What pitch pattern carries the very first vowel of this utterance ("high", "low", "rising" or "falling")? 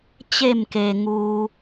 falling